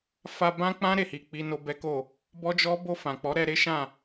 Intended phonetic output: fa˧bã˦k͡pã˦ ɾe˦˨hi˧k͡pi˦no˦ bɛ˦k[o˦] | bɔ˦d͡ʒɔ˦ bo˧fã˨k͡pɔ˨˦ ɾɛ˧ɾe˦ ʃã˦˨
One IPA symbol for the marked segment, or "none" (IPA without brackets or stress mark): o˦˨